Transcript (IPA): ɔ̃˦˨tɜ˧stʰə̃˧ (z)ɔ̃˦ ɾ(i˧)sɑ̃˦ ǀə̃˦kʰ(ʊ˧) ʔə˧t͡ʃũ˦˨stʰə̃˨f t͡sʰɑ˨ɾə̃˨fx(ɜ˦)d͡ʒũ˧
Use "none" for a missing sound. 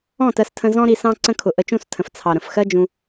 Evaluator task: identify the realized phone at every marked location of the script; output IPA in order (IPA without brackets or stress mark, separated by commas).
z, i˧, ʊ˧, ɜ˦